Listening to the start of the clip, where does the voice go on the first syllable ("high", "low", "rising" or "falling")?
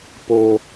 high